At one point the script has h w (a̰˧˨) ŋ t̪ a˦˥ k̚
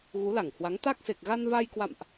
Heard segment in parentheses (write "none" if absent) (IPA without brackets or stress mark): a˨˦